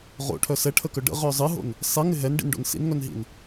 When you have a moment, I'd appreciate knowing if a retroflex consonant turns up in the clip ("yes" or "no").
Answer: yes